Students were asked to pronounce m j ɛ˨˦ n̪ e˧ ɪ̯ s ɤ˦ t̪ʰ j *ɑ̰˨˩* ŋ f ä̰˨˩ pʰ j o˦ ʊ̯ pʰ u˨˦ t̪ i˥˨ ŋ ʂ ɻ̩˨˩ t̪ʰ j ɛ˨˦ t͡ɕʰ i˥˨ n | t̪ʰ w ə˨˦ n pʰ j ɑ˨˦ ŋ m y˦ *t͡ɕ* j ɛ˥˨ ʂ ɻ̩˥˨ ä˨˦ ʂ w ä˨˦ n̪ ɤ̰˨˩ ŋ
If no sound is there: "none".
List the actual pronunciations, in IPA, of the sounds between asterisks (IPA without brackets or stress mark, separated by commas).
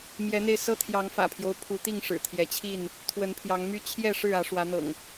ɑ˨˦, t͡ɕʰ